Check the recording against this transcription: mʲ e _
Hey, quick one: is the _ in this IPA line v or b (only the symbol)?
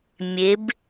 b